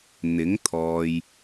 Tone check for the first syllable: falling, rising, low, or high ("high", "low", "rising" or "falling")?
rising